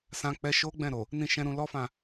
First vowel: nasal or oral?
nasal